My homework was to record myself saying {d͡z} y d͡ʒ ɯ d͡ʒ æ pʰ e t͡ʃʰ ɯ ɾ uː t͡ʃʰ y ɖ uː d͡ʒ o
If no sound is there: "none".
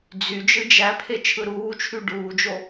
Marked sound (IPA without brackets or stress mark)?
d͡z